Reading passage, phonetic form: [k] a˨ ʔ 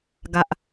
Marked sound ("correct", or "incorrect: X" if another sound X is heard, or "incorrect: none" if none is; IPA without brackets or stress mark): incorrect: ɡ